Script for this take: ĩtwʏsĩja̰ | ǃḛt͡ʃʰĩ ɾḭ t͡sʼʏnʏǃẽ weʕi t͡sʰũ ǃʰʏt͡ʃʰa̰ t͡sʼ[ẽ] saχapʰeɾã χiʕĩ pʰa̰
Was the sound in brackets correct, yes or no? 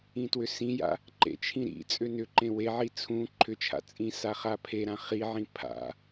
no